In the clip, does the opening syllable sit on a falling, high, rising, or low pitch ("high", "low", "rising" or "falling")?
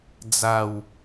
low